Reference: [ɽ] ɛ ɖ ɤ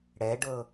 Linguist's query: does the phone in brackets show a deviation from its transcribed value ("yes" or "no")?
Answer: no